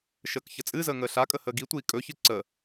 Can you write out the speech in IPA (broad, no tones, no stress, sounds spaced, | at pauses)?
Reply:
ʃ əː k ç ə t͡sʼ ɨ z əː ŋ əː ɬ a kʼ ə h əː ɡ i tʷ iː kʼ ɵ ç ɨ ǀ ə